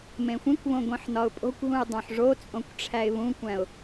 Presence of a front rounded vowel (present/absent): absent